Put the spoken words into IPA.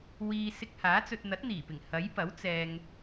w iː˧ s ɪ˧ k̚ h aː˨˥ t͡s ɵ˧ t̚ n̪ ɐ˨˥ t̚ n̪ iː˨˩ p ɪ˨˩ ŋ h ɐ˨˥ j p ɐ˨˥ w t͡s ɛː˧ ŋ

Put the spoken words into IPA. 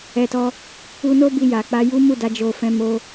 ɛ˧ t ɔ˧ | u˧ n o˦ b i˧ j a˨ k͡p a˧ j u˦ m u˦˨ d a˧ d͡ʒ o˦ f ɛ̃˦ m o˦

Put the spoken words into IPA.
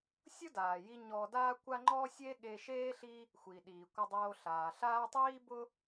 sʲ ʊ˥ d aː˩ j i˧ ɲ ɔ˧ d aː˥ kʷ a˥ ŋ͡ǃ ɔ˥ sʲ e˥ ɠ e˧ ʃ eː˥ ɬ i˥ | xʷ iː˩ ɗ iː˩ kʷ ɪ˧ dˤ oː˧ ɬ aː˩ ɬ aː˥ tˤ iː˥ b ʊ˥

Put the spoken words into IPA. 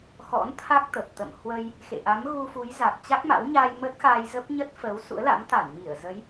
x ɔ̰˧˥ n t̪ʰ a˦˥ k̚ t̪ ə˨˩ p̚ t̪ ə̰˧˨ m h w ə˧ j | x ḛ˧˨ ʔ a˨˦ m ɣ u˧ f u˨˦ j z a˨˩ k̚ t͡ɕ a˦˥ k̚ m a̰˧˥ w ɲ aː˧ j m ə˦˥ t̚ x aː˧ j z ə˦˥ p̚ ɲ ə˦˥ t̚ f əː˨˦ w s ṵ˧˥ ə̯ l a̰˧˥ m t̪ a˧˩ n m i˧˩ ə̯ z ə˨˦ j

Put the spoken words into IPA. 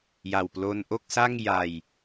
j a˨˩ w p l o˧ n ʔ o˥˩ k̚ s a˥˩ ŋ j a˧ j

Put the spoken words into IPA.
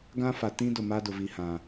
ɡ ã˦ f a˨ t ĩ˦ d ʊ˨ m a˦ d ʊ˨ v i˨ h ã˨

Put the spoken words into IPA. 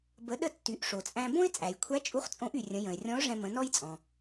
b ə˩˧ ɗ ə˧ tː y˩˧ ʔ ʂ o˩ t͡sʼ æ̃˧ b õ˥ ɪ̯ t͡sʼ æ˩ j kʷʰ æ˧˥ t͡ʃʼ u˧˥ χ t͡sʼ õ˧˥ ʔ y˩ rʲ ə̃˩˧ j ə̃˩ ɪ̯ rʲ ɔ̃˧˥ ʊ̯ ʐ ɛ̃˧ m ə̃˩˧ n ɔ˥ j t͡sʼ ɔ̃˩

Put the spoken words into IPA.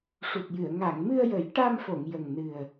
ʂ u˨˩ t̚ j ɨ˨˩˨ ə̯ ŋ a˨˩˨ ŋ m ɨ˧ ə̯ j ə˨˩˦ j ʈ a˧ m f o˨˩˨ ŋ j ə˨˩ ŋ n ɨ˨˩ ə̯

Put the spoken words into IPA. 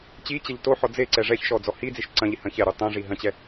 t͡ɕ i t͡ɕ ɛ ʎ t o ħ ɔ d͡z e ǀ ɛ ʐ ɛ ç ʃ ɔ d͡z ɔ h i d͡z i ʃ ǀ ɐ̃ ʎ i h ɐ̃ ç ɛ ɾ u tˤ ɛ̃ ʐ i ɦ ɐ̃ t͡ɕ ɛ

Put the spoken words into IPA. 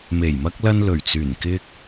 m e˨˩ j m ɐ˧ k̚ l ɐ˧ n l ɵ˨˩ ɥ t͡s yː˨˩ n k ɪ˧ k̚

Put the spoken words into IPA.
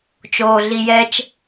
t͡ʃ oː ɮ i j ɛ t͡ʃ

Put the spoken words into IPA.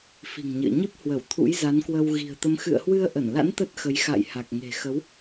f i̤˨˩ ŋ ɲ ɨ̰˧˨ ə̯ ɲ ɨ˦˥ p̚ h w ə˧˩ w t̪ʰ ṵ˧˥ j z a˨˦ n k w ə˧ w ɣ i̤˨˩ ə̯ t̪ ə˨˦ m x ɨ̰˧˨ ə̯ h w ɨ˧ ə̯ ʔ ə˧˩ n l a̰˧˥ n t̪ ə˦˥ t̚ x ə˨˦ j x a̰˧˨ j h a˨˩ k̚ ŋ e̤˨˩ x ə˨˦ w

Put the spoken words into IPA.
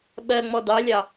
ɓ ɜ ŋ͡m ɔ d ɑ lʲ ɑ

